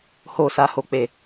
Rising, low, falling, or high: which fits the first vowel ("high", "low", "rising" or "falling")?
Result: low